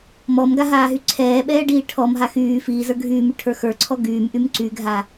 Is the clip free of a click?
no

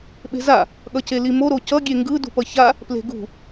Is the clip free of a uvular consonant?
yes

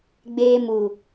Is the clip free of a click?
yes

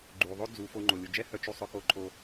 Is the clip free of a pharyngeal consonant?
yes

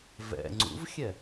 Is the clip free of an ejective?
yes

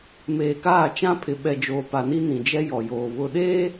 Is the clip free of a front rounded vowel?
yes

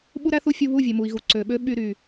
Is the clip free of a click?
no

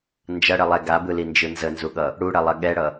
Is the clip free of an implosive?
no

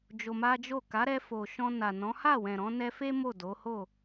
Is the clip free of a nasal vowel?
no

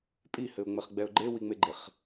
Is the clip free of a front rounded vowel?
yes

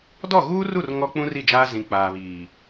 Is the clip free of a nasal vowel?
no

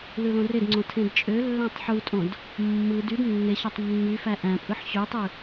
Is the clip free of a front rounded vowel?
no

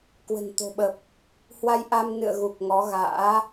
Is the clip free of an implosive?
no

